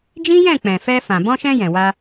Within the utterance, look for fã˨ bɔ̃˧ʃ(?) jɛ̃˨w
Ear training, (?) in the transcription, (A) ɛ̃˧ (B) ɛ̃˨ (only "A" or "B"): A